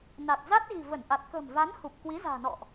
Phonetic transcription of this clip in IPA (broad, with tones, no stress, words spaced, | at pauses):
na˨˩t̚za˦˥t̚ɣi̤˨˩ və˧˩nʔa˨˩t̚kə̤˨˩m va˨˦nhu˨˩p̚ kwi˨˦za̤ː˨˩nɔ̰˧˨ʔ